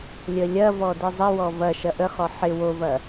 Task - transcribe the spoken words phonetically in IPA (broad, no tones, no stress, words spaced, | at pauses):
lʲəlʲɐvɔ dɪzˤəwɔ vɐʃɐ ʔəχɔ ħɪ wovɐ